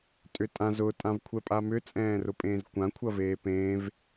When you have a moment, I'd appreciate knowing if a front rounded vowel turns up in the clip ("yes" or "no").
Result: yes